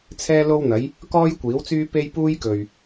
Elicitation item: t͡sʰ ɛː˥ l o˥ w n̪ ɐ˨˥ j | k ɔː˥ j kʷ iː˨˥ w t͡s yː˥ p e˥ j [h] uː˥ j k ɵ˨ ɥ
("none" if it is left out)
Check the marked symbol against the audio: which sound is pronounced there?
p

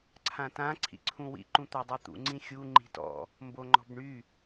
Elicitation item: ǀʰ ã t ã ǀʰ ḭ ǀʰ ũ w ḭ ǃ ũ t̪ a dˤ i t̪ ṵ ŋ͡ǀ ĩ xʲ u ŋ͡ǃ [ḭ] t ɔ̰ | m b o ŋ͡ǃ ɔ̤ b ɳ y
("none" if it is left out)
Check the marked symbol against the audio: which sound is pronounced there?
i̤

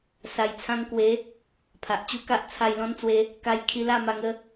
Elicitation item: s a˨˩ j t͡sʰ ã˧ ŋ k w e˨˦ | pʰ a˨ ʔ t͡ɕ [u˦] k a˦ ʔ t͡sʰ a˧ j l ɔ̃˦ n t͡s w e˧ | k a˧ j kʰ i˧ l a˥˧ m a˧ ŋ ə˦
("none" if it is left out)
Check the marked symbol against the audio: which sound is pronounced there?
u˦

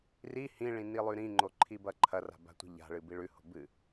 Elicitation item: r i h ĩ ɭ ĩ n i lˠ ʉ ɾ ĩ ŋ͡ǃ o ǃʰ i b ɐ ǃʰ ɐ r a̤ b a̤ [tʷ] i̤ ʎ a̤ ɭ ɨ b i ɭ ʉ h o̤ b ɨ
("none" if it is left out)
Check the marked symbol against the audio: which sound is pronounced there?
tʷ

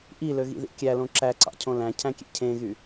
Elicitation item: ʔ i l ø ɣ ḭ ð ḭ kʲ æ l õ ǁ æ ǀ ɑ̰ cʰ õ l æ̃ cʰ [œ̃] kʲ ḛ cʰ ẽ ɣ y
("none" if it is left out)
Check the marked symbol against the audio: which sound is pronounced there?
æ̃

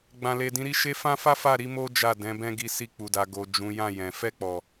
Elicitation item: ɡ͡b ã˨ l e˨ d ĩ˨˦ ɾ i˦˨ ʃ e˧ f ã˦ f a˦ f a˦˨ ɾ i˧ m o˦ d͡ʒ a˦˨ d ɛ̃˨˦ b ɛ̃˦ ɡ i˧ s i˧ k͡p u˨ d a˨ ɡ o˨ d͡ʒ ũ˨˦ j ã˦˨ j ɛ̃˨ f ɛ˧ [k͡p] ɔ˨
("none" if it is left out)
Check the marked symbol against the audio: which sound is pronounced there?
k͡p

